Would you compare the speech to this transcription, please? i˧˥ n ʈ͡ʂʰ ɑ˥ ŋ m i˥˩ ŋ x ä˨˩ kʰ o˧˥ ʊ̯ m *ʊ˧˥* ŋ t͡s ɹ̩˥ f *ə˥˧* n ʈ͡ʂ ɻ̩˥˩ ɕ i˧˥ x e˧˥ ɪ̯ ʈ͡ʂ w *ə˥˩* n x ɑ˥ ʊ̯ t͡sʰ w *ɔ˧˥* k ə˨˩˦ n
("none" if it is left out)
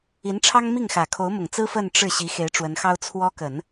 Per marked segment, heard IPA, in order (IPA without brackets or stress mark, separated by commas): ʊ˨˩, ə˥˧, ə˧˥, ɔ˥